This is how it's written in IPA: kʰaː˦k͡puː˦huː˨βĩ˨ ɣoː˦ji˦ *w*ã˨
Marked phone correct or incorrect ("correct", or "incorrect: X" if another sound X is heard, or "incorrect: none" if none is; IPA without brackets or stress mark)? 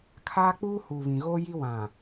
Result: correct